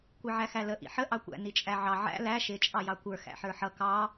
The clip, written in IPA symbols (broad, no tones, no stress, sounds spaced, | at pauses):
kʷ i ʕ æ x æ l ə ʔ ḭ ħ ə ʔ ɑ kʷ æ̰ n i t͡ʃʼ æ ʕ ɑ ʕ æ̰ l æ ʃ ɪ t͡ʃʼ ɑ j ɑ kʷ ə˞ x æ̰ ħ ə˞ ħ ʌ k ɑ